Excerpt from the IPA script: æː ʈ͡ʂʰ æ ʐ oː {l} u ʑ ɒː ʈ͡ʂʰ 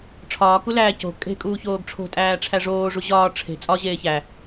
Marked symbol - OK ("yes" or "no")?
no